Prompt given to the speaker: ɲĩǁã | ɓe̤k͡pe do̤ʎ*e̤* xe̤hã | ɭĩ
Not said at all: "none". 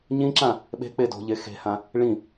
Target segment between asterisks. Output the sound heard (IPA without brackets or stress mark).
e